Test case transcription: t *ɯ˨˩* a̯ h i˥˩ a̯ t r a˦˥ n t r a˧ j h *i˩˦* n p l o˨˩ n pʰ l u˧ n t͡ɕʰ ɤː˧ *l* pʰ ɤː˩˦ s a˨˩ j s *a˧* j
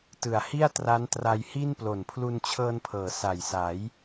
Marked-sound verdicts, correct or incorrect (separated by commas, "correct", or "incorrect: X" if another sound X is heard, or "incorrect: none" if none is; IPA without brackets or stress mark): correct, incorrect: i˥˩, incorrect: n, incorrect: a˩˦